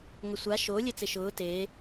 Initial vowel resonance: oral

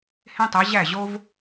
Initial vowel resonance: nasal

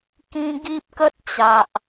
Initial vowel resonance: nasal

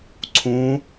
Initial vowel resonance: nasal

